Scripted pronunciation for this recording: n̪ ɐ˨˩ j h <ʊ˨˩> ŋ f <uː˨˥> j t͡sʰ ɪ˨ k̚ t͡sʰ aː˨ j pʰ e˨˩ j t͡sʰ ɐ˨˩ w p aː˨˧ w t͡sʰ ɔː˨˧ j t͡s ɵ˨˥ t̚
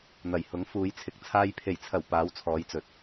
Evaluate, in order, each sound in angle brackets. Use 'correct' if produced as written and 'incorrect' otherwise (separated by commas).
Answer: incorrect, incorrect